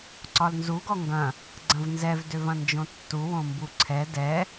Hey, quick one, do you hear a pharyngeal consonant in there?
no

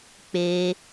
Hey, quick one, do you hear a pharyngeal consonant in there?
no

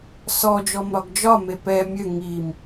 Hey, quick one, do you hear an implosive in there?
no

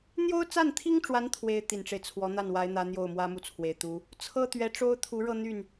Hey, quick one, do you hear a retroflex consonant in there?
yes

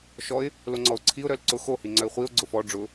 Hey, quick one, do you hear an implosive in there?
no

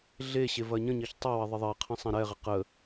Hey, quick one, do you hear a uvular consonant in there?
yes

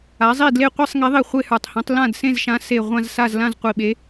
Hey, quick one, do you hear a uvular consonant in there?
yes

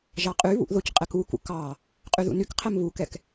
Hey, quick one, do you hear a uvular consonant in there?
yes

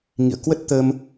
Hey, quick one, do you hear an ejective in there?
no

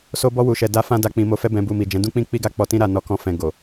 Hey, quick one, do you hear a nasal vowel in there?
yes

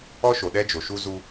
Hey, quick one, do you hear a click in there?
no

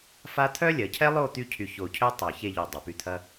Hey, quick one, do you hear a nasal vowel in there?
no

